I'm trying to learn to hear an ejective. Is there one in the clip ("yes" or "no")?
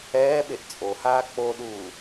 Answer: yes